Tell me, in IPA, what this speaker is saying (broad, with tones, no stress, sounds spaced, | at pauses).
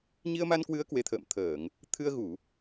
ɲ i˧ ə̯ m a˧ n k w ɨ˨˦ ə̯ k w e˨˦ t̪ʰ ə̰ː˧˨ m t̪ʰ əː˧˩˨ ŋ | t̪ʰ ɨ˧ ə̯ ɣ u˧˩˨